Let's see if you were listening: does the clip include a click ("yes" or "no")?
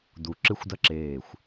yes